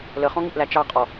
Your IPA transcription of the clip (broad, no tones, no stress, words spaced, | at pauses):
ləχɔ̃ŋiʔlæ t͡ʃɑqʼɔ